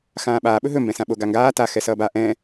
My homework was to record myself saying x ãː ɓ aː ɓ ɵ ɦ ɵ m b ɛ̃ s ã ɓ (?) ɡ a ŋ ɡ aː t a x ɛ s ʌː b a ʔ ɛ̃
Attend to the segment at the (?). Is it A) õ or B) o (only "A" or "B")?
B